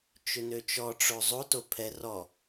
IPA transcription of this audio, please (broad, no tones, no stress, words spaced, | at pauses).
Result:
t͡ʃʏnøt͡ʃɔʈ͡ʂo zˤoto pʰɛ rɔ